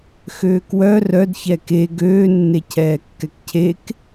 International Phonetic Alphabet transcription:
x øː k w œ r œ d ç ɛ k e ɡ øː nː e cʰ ɛː kː ɛ k cʰ e k

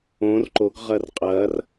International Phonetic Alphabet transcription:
õ r ǃ o ɡ ʁ ɐ r qʼ ɐː r

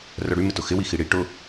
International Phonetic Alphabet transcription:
r œ ɽ y m ɪ t ʊ x ɪ w i x i ɽ i ʈ ʊ

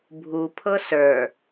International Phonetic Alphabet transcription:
bʱ u pʰ ɤ s ə˞

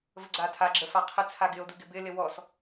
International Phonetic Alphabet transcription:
v ə ɡ͡ǀ a tʰ a ɡ͡ǁ ə f a qʰ ɪ t͡sʰ a ɡ ɪ o̯ d u ɡ ɪ b ɪ l ɪ w ɔ s

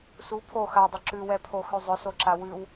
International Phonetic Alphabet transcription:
s u pʰ o x a dˤ ʏ ǁ ʉ w ɛ pʰ o x ʉ zˤ ʏ s o ǁ a w ʉ w

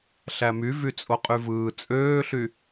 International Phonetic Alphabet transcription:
ɬ æ m y v y t͡sʼ o qʼ y v ɯː t͡sʼ øː ɬ y

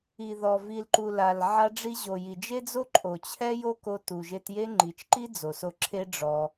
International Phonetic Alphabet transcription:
i˨ ð ɔ˨ v i˨ l ǃ u˨ l a˨ l ʕ a˧ ɖ͡ʐ i˧ ʑ o˨ j i˨ d͡ʒ e˦ d͡z o˦ ǃʼ o˨ t͡ɕʰ ɛ˦ j o˦ k o˧ t u˨ ʒ e˧ t j e˦ ŋ͡ǃ i˨ t͡ʃ ǃ i˦ d͡z o˨ s o˧ ǁʰ e˦ ɖ͡ʐ ɔ˧

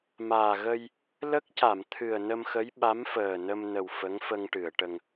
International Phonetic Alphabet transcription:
m aː˨˩ ɣ ə˧ j | l ə˦˥ k̚ c a˨˩˨ m t̪ʰ ɨ˨˩ ə̯ n ə˧ m x ə˧˥ j ɓ a˧˥ m f əː˨˩ n ə˧ m n ə˨˩ w f ə˧˥ ŋ f ə˧ ŋ ʈ ɨ˨˩˨ ə̯ ʈ ə˧ ŋ

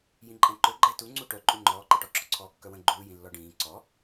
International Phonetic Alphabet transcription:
j ĩ ǃʼ ɛ̃ ǃ ø ɡ͡ǃ ɛ t u ŋ͡ǀ u ʈ œ ǃʼ u ŋ͡ǃ ɔː ǃ i ʈ ɔ ǁ ɔ ǀʰ ɔː kː œ w ə̃ ɡ͡ǃ uː j ĩ lː ɔ ɖ ĩː ǀ ɔ

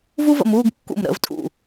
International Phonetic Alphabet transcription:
v u˥ v ə̰˧ m uː˥˧ ɡ kː ṵ˧˩ m ɾ ə̰˩˧ v tʼ ṵ˧˩

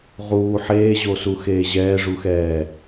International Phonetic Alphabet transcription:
ʁ uː ħ eː ʑ o s u x eː ʑ ɛː ʐ u x ɛː

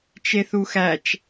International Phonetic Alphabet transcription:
t͡ʃ e θ u x æ t͡ʃ

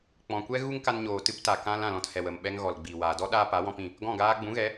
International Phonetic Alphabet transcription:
k͡p ɔ̃˨ kʷ ɛ˦ ɣ u˦ ŋ k a˧ n ɲ oː˨ t ɨ˦ p t a˨ k ã˦ l ã˦˨ l ɔ̃˧ t h ɛ˨ w ə˨ m ɓ ɛ˧ ŋ ɣ ɔ˨ l ɡ͡b iː˨ w aː˨ d ɔ˦ ɗ aː˧ p a˨˦ w ɔ̃˧ p ĩ˦˨ | ɡ ɔ̃˦˨ ɡ aː˦ ɡ͡b ũ˨˦ ɣ ɛ˨˦

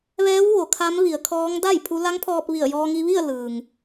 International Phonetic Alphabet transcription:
ʋ ɛː˧˥ w ʋ o˩˧ kʰ a˧˥ m ʋ i˩˧ ə̯ kʰ ɔː˧˥ ŋ d a˥˨ j pʰ u˧˥ l a˧˥ ŋ pʰ ɔː˧ p̚ ʋ i˧˩ ə̯ j ɔː˧ ŋ i˧ ʋ i˥˨ ə̯ l ɯː˩ ŋ

